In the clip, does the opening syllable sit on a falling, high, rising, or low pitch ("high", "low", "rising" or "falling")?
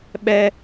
high